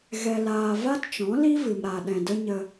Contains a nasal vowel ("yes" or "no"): yes